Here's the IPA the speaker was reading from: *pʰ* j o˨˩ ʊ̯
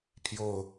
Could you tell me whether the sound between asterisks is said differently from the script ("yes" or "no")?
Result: no